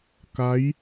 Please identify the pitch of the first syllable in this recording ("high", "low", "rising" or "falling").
rising